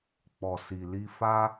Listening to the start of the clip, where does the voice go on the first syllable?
low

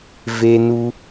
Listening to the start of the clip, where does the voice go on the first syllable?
high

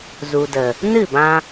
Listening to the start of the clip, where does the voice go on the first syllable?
low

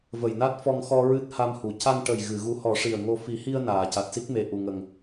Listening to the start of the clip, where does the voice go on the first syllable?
low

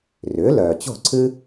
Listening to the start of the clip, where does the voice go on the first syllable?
rising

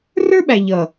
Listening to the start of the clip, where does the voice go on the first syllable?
high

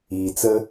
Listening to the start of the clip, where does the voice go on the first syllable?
low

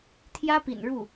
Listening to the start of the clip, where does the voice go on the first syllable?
high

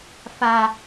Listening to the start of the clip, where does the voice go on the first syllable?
low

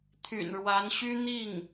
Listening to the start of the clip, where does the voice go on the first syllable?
low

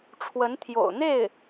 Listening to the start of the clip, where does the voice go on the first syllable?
rising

